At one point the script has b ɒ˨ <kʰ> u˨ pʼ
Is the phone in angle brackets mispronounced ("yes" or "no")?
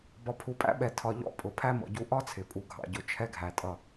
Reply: yes